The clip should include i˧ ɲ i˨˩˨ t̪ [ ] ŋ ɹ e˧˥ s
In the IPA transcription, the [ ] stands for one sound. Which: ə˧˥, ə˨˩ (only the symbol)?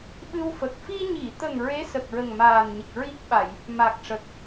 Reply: ə˨˩